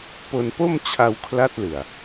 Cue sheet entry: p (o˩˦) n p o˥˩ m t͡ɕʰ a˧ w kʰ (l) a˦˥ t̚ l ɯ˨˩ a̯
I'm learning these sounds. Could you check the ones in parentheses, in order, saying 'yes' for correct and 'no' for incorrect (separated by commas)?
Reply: no, yes